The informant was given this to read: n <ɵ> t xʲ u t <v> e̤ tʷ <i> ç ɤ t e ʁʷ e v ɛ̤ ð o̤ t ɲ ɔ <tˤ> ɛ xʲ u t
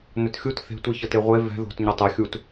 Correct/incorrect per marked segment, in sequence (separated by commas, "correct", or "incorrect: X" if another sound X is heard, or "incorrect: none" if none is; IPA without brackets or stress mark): correct, incorrect: θ, correct, correct